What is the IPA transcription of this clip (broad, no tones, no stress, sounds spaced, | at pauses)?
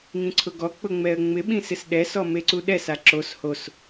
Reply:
ŋ ĩ ǀʰ ʊ ɡ ɔ k͡p ʊ ŋ͡m ɛ ə̯ ŋ͡m ɪ ɓ ĩ s ɪ s ɗ ɛ s ɔ m e ǀ u ɗ ɛ s a ǁ o s h o s